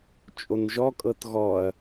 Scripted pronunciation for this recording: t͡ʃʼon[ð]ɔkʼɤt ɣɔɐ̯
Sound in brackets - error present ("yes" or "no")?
yes